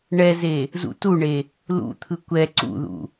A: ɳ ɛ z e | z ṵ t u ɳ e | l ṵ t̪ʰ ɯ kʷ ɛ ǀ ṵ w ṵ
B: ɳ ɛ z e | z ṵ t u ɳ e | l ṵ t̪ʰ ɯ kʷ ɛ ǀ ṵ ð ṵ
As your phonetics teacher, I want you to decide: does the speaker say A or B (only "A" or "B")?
B